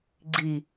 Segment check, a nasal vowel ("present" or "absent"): absent